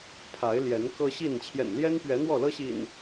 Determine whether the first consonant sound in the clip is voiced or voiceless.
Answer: voiceless